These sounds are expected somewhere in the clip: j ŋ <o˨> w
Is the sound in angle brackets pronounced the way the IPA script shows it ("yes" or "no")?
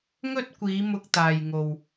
yes